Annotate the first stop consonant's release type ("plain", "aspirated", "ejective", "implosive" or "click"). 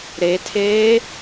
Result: aspirated